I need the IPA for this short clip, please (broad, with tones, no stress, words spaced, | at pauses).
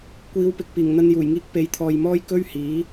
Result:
kʷiː˨˧wpɪ˨k̚ piː˨˩ŋn̪ɐ˧njuː˨˩jŋiː˧k̚ pe˨jt̪ʰɔː˨jmɔː˥j kɵ˥ɥhiː˨˥